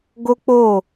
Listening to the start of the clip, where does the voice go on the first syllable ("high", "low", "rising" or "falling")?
high